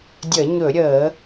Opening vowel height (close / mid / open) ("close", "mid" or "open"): mid